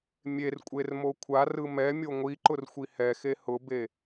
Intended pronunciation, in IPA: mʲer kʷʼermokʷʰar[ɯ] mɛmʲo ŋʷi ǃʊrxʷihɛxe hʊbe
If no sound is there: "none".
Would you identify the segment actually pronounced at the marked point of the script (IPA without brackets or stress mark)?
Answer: ɯ